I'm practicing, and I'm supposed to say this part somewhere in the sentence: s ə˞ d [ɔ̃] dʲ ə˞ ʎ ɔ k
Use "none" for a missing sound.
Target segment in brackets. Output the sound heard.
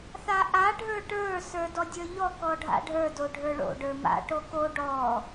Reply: ɔ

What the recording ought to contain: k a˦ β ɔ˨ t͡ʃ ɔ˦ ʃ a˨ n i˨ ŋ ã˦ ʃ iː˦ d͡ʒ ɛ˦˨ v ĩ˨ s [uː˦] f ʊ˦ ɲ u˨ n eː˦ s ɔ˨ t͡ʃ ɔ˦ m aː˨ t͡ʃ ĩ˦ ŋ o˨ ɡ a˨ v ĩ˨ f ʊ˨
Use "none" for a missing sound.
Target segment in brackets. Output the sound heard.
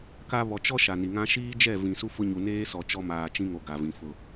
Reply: u˦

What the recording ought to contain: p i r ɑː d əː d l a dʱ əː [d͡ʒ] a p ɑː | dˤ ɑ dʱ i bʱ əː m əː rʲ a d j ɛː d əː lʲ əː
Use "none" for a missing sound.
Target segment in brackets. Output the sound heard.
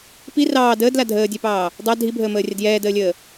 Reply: dʲ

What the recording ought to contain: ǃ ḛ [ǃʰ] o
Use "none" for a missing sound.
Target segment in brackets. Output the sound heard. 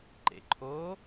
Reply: ǃʰ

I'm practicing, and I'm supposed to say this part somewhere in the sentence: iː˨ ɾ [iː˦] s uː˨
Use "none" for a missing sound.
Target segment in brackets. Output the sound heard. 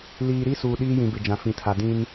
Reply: i˦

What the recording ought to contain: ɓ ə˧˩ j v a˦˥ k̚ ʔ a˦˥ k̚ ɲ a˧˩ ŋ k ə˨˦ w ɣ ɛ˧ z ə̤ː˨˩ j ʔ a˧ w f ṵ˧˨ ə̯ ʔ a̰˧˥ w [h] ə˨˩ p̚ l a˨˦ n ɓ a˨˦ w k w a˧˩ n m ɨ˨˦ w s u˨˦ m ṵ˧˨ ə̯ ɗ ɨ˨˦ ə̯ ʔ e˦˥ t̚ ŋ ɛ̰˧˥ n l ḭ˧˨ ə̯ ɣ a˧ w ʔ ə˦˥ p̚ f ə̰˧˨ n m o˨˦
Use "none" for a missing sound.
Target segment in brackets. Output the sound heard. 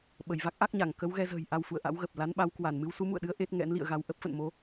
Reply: ɣ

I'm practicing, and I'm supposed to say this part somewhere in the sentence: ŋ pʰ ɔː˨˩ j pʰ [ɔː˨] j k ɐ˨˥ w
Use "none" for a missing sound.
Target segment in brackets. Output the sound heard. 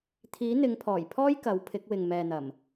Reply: ɔː˥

